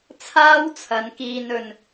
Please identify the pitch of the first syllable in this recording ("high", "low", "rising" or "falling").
high